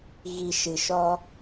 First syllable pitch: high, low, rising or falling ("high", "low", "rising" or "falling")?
low